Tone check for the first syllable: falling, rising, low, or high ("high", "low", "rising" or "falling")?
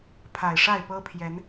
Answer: low